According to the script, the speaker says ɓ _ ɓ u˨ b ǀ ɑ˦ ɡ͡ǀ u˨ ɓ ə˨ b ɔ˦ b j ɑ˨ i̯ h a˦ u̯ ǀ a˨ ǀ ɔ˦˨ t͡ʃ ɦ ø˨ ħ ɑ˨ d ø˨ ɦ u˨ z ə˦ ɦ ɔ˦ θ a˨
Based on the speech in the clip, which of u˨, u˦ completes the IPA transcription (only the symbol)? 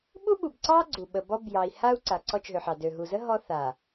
u˦